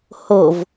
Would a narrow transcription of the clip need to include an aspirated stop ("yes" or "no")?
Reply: no